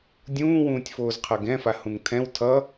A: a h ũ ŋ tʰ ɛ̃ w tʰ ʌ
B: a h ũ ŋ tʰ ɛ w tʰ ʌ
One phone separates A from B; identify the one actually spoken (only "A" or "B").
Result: A